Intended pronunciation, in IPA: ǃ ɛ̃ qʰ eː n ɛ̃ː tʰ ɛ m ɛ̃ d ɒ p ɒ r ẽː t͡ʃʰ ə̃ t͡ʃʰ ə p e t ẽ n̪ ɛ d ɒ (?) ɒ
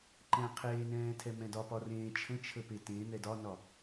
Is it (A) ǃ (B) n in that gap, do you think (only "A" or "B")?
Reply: B